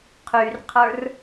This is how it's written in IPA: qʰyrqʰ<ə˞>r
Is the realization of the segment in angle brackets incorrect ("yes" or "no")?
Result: no